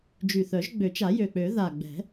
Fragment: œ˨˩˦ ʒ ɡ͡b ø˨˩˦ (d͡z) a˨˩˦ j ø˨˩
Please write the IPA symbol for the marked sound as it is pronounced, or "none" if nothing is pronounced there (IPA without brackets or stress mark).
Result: t͡ʃ